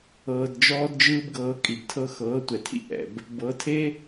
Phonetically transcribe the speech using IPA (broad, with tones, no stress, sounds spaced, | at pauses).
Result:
ɤː˧ d d͡ʒ ɔː˦ d d͡ʒ ɯː˦ b ɡ ɤː˧ kʼ i˨ b tʰ ɤ˦ x ɤː˨˦ tʷ ɛ˨ tʰ ḭ˦ ʔ ɛ̰˨ b | b ɤ˨˦ tʰ e˦